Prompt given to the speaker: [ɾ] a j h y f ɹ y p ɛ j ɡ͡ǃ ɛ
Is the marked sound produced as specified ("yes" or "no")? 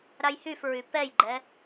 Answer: yes